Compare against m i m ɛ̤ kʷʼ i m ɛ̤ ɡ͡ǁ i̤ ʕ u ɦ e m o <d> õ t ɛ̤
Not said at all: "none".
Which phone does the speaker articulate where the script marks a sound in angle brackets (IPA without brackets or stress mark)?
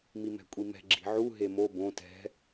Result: b